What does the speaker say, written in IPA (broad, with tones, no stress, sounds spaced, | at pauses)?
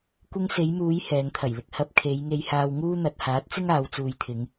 kʷ ɪ˧ ŋ s e˨˧ j m uː˨˧ j h ɛː˨˧ ŋ t̪ʰ ɐ˨˩ j l ɪ˧ k̚ h ɐ˧ p̚ kʰ e˨˧ j ŋ e˧ j h aː˧ w ŋ uː˥ n̪ ɐ˨ t̚ h aː˨˥ t̚ t͡s ɪ˥ ŋ aː˨˧ w t͡s uː˨ j t̪ʰ ɪ˨˧ ŋ